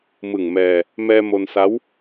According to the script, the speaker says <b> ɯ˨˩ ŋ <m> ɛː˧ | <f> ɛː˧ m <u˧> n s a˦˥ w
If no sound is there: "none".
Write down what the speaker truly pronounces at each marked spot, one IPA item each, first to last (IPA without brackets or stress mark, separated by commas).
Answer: m, m, m, o˧